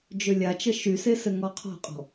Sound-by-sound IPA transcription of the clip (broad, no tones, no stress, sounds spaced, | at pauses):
d͡ʒ ø lʲ a t͡ʃ ə ʃ y s e s ɘ ŋ ɔ qʰ ɔ̤ qʼ ɔ̤